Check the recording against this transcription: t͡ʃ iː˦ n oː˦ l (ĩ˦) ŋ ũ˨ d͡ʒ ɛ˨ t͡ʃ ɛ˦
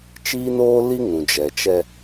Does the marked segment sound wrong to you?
yes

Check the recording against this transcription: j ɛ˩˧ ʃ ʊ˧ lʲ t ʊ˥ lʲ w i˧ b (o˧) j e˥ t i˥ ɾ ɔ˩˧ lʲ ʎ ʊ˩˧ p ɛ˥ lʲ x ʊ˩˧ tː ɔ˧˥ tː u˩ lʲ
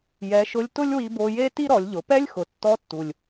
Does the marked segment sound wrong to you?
no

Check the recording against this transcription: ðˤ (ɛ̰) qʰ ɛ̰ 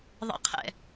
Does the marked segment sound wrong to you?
no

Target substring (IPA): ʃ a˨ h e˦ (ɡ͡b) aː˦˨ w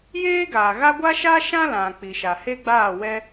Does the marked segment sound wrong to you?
no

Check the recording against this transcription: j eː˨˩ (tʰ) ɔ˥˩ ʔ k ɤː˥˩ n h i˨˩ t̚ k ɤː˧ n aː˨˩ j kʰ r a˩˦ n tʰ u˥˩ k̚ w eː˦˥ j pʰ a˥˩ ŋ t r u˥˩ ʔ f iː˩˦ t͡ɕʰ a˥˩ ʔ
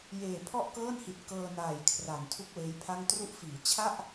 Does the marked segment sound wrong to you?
yes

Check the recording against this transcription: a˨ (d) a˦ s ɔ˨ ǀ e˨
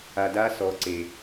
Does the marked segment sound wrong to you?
no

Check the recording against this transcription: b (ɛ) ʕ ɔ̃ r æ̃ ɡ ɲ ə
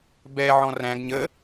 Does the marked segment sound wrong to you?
no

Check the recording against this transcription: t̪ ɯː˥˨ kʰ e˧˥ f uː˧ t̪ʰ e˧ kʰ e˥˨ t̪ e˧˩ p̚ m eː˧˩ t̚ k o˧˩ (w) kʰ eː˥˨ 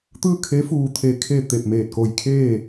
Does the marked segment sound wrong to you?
yes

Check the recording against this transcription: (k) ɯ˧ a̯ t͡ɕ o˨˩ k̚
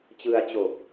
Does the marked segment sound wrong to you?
yes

